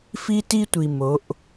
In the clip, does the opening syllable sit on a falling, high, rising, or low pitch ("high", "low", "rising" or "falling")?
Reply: high